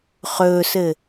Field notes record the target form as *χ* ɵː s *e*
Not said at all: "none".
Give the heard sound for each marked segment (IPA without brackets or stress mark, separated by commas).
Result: χ, ɘ